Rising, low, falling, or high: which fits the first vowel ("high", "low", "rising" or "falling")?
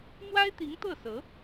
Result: high